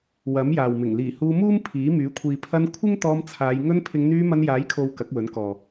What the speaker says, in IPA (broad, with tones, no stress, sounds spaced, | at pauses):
w ɐ˨˥ m j aː˨ w m ɪ˨˩ ŋ l iː˨˩ h uː˧ m uː˥ m pʰ iː˨˥ m yː˨˥ kʷʰ iː˨ pʰ ɐ˧ n kʷʰ ɪ˥ ŋ t̪ ɔː˧ m t͡sʰ aː˨˧ j ŋ ɵ˧ n pʰ ɪ˨˧ ŋ n̪ yː˧ m ɐ˧ n j aː˨˥ j kʰ o˨˧ w k ɐ˨˥ k̚ w ɵ˨˥ n k ɔː˨